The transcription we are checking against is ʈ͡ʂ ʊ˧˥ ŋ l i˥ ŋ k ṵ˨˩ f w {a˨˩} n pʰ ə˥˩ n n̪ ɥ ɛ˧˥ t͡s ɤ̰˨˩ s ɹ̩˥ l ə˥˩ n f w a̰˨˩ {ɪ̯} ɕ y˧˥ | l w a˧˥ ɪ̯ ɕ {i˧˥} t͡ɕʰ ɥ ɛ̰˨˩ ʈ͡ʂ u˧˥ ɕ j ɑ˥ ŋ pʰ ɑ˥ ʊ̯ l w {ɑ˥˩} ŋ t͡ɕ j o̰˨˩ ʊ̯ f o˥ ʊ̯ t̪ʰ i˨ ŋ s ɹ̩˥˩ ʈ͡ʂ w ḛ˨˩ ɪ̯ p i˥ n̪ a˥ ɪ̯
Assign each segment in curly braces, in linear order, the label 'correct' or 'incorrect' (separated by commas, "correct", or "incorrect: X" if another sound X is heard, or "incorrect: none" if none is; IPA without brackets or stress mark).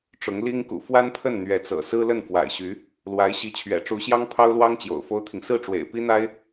incorrect: a˥, correct, correct, incorrect: ɑ˥